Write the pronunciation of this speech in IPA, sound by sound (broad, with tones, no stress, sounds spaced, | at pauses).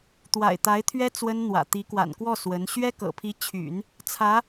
t̪ w a̰˨˩ ɪ̯ t̪ a˧˥ ɪ̯ t̪ʰ ɥ ɛ˥ t͡s w ə˥ n n̪ w ä̰˨˩ t̪ i˧˥ k w a̰˨˩ n k w ɔ˥˩ s w ə˧˥ n ɕ ɥ ɛ˥ k ɤ̰˨˩ pʰ i˧˥ t͡ɕʰ y̰˨˩˦ n | t͡sʰ ä˧˥